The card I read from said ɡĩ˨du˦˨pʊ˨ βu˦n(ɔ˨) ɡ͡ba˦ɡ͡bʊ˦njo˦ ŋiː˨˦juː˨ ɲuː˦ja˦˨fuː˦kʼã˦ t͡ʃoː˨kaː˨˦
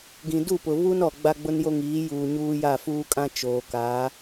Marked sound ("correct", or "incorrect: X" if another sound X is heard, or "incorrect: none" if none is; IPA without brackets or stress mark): correct